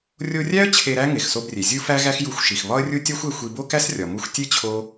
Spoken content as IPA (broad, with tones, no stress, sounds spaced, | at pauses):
rʲ o˧ rʲ æ˥ ə̯ t͡ɕʰ e˧ ɾ æ˥ ŋ e˩ x s o˧ b rʲ e˩ zʲ u˥ f æ˥ ɣ æ˥ x j u˧ xʷ ʃ i˩ x β ɒ˥ ə̯ rʲ u˥ tʲ ɒ˥ xʷ e˧ xʷ i˧ b o˥ k æ˥ s rʲ ɒ˩ m u˧ xʷ tʲ e˥ t͡ɕʰ o˥